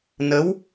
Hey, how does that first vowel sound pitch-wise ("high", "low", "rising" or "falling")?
rising